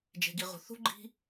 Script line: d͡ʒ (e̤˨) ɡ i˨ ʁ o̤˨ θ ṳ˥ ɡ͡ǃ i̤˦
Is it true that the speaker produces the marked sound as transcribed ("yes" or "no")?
yes